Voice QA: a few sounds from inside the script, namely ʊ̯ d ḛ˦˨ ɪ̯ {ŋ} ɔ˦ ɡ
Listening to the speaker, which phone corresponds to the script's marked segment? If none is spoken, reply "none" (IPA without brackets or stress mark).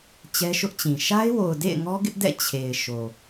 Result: ŋ